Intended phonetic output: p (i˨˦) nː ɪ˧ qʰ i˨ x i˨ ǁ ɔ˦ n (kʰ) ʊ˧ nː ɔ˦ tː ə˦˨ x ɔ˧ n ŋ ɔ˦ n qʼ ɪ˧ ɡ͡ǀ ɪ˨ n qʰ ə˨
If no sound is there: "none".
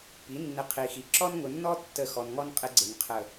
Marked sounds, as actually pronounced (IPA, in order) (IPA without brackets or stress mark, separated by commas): i˨˦, ŋ